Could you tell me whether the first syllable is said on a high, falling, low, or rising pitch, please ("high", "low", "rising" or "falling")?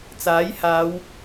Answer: rising